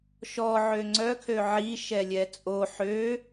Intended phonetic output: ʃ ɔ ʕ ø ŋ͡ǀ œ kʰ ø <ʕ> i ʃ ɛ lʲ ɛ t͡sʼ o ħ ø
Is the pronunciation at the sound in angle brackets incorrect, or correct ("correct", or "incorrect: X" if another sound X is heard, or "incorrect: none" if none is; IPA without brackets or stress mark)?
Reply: correct